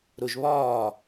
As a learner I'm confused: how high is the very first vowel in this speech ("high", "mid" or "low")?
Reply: high